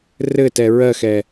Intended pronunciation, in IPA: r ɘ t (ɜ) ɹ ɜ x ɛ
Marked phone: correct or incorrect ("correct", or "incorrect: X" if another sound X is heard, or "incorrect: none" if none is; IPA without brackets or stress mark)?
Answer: incorrect: ɛ